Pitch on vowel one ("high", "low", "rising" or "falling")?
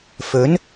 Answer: rising